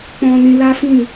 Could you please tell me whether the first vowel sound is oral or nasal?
nasal